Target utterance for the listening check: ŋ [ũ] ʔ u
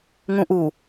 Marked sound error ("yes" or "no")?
no